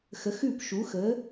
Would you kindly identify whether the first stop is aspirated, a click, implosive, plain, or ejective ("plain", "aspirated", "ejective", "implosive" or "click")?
plain